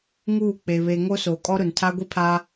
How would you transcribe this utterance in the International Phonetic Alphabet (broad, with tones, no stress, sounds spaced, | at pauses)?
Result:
ŋ uː˦˨ k͡p e˨ β e˨ ŋ o˦ s oː˨ kʼ ɔ˦ ɾ ʊ˨ n tʰ a˦ ɡʷ i˦ pʰ a˦